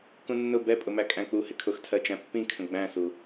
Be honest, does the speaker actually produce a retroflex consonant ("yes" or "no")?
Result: no